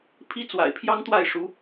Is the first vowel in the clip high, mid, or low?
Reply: high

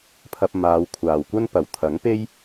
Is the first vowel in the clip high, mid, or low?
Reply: low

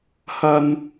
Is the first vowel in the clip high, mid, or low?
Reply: low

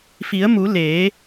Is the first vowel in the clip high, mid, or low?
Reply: high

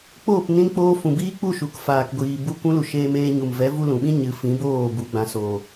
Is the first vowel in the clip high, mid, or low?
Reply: mid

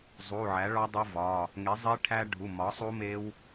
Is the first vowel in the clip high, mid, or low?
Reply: high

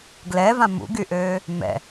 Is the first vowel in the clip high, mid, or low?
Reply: mid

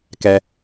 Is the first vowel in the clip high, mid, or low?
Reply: mid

